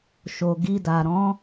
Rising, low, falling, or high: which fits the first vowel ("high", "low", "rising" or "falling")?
low